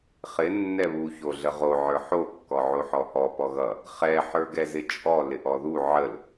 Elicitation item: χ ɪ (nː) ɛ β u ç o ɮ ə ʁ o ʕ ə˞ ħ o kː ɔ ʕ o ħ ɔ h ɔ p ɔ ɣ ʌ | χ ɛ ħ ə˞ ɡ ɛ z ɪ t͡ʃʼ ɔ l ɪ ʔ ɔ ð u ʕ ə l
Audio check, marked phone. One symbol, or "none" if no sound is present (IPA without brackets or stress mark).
nː